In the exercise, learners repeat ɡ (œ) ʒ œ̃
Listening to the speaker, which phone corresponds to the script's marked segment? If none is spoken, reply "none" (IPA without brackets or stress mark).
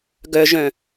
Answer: œ